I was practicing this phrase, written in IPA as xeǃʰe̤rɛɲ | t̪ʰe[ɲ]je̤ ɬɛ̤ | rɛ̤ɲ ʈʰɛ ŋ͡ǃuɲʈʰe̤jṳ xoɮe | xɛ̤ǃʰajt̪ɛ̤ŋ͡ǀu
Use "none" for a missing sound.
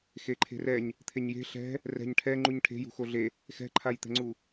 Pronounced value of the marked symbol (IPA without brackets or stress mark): ɲ